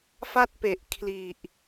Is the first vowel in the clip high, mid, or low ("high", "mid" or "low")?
low